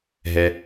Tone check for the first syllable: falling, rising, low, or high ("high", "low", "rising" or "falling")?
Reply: high